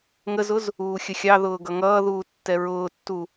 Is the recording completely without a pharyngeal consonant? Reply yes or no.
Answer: yes